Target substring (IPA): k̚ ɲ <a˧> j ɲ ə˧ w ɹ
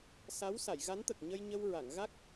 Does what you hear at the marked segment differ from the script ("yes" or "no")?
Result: yes